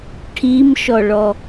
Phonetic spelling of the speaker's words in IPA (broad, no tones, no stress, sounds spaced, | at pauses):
ʈʰ i m ʃ ɔ ɭ ɔ